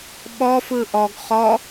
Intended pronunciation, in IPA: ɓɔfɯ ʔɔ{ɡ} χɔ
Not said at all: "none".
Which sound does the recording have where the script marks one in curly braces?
ɡ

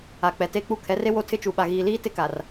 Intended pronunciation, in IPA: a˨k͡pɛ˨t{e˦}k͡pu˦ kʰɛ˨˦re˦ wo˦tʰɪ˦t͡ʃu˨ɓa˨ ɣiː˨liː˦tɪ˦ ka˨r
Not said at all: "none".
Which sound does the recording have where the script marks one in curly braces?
e˦˨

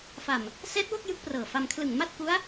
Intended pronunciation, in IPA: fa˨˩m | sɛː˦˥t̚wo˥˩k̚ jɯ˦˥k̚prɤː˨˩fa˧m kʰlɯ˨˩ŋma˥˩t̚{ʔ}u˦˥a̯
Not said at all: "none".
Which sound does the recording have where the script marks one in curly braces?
k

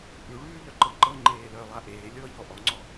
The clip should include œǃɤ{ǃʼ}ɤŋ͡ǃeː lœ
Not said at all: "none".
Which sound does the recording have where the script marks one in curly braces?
ǃ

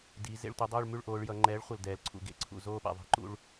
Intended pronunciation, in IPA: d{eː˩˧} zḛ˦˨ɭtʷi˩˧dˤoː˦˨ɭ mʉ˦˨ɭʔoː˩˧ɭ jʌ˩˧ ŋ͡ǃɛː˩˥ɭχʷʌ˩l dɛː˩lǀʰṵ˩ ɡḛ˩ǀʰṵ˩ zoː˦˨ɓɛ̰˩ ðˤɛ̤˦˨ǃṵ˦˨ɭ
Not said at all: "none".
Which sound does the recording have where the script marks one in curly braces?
iː˩˧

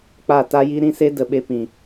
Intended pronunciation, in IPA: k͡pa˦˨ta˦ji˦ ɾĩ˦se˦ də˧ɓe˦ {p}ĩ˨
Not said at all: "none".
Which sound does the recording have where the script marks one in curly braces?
p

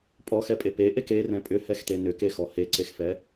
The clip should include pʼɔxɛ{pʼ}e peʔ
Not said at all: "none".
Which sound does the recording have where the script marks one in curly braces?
pʼ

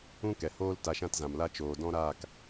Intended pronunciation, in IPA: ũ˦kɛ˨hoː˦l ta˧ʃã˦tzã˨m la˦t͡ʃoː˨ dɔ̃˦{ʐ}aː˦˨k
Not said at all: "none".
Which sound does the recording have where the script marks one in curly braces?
ɾ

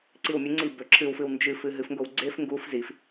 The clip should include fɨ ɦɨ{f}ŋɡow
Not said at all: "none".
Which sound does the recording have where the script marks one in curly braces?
f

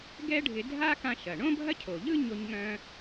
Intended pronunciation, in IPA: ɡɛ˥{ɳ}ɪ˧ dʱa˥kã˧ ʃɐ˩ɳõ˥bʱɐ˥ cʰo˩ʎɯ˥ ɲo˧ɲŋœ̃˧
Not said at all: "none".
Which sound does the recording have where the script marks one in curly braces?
ɖʱ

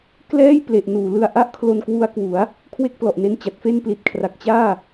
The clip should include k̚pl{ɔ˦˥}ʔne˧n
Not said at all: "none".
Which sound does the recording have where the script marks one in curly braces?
ɔ˨˩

